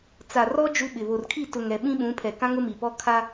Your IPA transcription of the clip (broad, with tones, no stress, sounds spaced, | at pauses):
t͡s a˨ r ɔ˦ d͡ʒ u˦ ɓ ɪ˨ β o˨ r kʰ i˦˨ t ʊ˨ ŋ ɛ˨ ɓ ĩ˦ ɓ ũ˨˦ pʰ ɛ˨ k ã˦ ŋ ʊ˦ m i˨ p ɔ˦ kʰ a˦